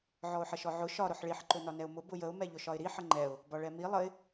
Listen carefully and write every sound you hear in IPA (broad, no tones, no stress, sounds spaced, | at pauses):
ʕ ɔ ʊ̯ ħ ə ʃ ɔ ʕ ʊ ʃ ɒ ɾ ʊ ħ ɭ i ħ ǃ ʊ n ɒ n ɛ ʊ̯ m ʊ b ʊ j ə ʊ̯ m ɛ ʎ ʊ ʃ ɒ ɪ̯ ɾ i ħ ə ŋ͡ǃ ɛ ʊ̯ | b ɒ ɭ ɛ m i lˠ ə ɪ̯